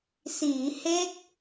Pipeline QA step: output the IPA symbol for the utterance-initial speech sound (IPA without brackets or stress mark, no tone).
s